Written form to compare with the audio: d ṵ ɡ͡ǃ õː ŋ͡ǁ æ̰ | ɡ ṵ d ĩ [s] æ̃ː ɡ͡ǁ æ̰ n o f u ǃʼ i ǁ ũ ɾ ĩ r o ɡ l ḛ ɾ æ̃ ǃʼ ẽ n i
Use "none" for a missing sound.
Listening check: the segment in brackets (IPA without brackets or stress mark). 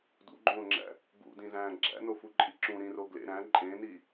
z